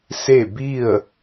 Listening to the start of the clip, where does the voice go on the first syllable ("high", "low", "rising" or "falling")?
falling